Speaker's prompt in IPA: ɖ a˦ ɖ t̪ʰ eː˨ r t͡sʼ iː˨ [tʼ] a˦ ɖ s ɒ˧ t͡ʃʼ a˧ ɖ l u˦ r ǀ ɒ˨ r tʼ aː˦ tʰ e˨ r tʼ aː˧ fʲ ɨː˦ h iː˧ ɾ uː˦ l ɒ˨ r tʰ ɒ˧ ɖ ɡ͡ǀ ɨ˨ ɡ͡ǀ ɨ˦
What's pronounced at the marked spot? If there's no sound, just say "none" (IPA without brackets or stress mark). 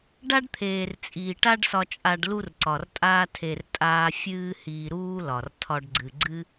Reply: ʈ